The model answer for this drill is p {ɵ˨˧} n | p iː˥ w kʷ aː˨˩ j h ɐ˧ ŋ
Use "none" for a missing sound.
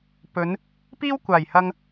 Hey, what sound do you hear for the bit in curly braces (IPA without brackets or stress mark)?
ɵ˨˧